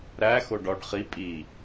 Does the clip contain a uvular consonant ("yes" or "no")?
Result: yes